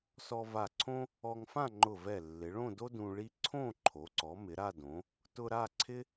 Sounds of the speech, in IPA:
s ɔ˧ v a˧˩ ǀʰ õ˥ | ɔ˧ ŋ f ã˥˧ ŋ͡ǃ ʊ˧˩ v ɛ˧˩ lː ɪ˩˧ ɭ õ˥˧ d o˥ d ũ˧ ɭ i˥ ǀʰ õ˥˧ ǃʰ o˩˧ ǀ ɔ˩˧ m ɪ˩˧ ɾ a˥˧ d õ˩˧ | t ʊ˧ ɾ a˥˧ ǀʰ ɪ˥

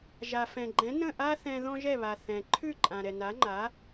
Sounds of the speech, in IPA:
ʒ a˩ f ɛ̃˩ ɡ͡ǃ ɛ̃˩˥ n ə̃˥˩ ʔ a˥ θ ɛ̃˧ ð ɔ̃˥ ʒ ɛ˥˩ β a˩ θ ɛ̃˩ ǃʰ ʉ˥˩ ǃʼ ã˩ ɾ ɛ˩ n a˩˥ ŋ͡ǃ a˩˥

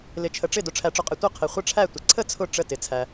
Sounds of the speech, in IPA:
l ɪ˨ t͡ʃʰ ə˨ ʈ͡ʂ ɪ˥˩ d ʊ˨ ʈ͡ʂʰ æ˨ ʈ͡ʂ ʊ˨ qʼ ɪ˨ tʷ ʌ˥˩ qʰ ɪ˨ χʷ ə˥˩ ʈ͡ʂʰ æ˥˩ tʷ ɪ˨ ǀʰ ə˥˩ t͡sʰ ʊ˥˩ ʈ͡ʂ ə˥˩ t ɪ˨ t͡sʰ æ˨

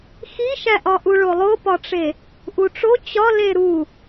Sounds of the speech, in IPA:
x i ʃ æ ʔ ɒ ʔ u ɭ o lˠ o p ɒ ʈ͡ʂ e | ʔ u ʈ͡ʂ o t͡ɕ ɒ l e ɾ u

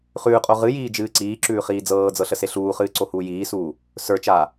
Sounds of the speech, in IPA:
χ ʉː qʼ o ʁ ɨ j iː d͡ʒ ɨː ǀ iː ǁ ʉː χ iː d͡z ɤː d͡z ɤ ɬ ə s e ɬ uː χ ɨː ǀ o h uː j iː s uː | s ə˞ t͡ʃ aː

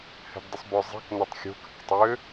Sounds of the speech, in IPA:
h ɛ̤ b dˤ ə sˤ b œ zˤ i̤ k n ʌ tˤ xʲ o̤ k ə̰ k tˤ ø

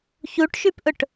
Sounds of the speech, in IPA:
ç u ʈ ʃ y p ʔ ʊ ʈ

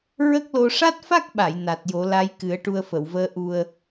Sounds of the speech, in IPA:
ɹ ə˦˥ k̚ l o˧ ʂ a˦˥ t̚ f a˦˥ k̚ ɓ a˨˩˨ j n a˨˩ t̚ j o˨˩˦ l a˧˥ j k ɨ˨˩˦ ə̯ ʈ u˧ ə̯ f ə˨˩˨ w v əː˧˥ ʔ u˧ ə̯

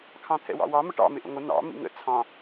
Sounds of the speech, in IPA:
kʰ ɑ̃ t̪ʰ ɛ̰ w ɑ̰ w ɑ m ə ʈ ɑ̰ m ɪ ʔ ə̰ ŋʷ ə n ɑ̰ m ḭ ŋ ə̰ t͡sʰ ɑ̃

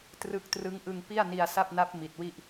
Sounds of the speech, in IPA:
t r ɯ˦˥ k̚ t r ɯ˦˥ ŋ ʔ ɯ˧ ŋ p i˥˩ a̯ n i˧ a̯ s a˥˩ p̚ n a˦˥ p̚ m i˨˩ t̚ w i˥˩ ʔ

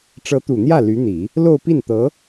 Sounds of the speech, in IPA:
ʈ͡ʂ ɤ˧˥ t̪ u˨˩ n̪ j ä˥˩ l y˧˥ n̪ i˨˩˦ | l o˥˧ ʊ̯ p i˥˩ n t̪ ɤ˧˥

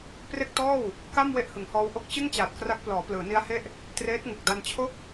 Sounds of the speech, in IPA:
p r e˥˩ k̚ t ɔː˥˩ w | k a˥˩ m w e˥˩ ʔ h ɯ˩˦ ŋ h ɔː˦˥ w ʔ o˥˩ k̚ t͡ɕ ɯ˥˩ ŋ t͡ɕ aː˨˩ t̚ k r a˦˥ k̚ p l ɔː˩˦ p l ɯː˩˦ n i˦˥ a̯ h e˥˩ ʔ | t r eː˦˥ t̚ ŋ u˨˩ k̚ d a˧ n t͡ɕʰ o˥˩ k̚

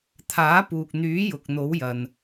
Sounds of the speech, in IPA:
t̪ʰ aː˨˥ p uː˨ k̚ n̪ yː˨˥ j ʊ˨ k̚ n̪ o˨˥ w j ɐ˨ n

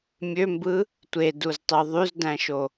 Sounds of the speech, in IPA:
mʲ ø m b ɯ | tʷ e d u z tˤ y ðˤ y z d æ̃ ʃ o

